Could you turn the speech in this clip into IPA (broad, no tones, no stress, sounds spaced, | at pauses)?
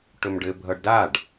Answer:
ʈ ɵ m ɖ ɘ bʱ ʌ ɖ d a ɖ